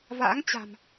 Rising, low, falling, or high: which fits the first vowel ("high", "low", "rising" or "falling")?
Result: rising